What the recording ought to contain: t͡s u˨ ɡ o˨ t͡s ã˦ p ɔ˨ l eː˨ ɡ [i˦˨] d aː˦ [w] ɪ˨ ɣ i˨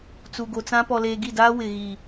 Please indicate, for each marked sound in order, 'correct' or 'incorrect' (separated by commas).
correct, correct